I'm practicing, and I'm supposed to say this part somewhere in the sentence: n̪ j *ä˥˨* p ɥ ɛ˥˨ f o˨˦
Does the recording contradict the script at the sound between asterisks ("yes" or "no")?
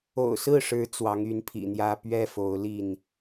yes